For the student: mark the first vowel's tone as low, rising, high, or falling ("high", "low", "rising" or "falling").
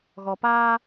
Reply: low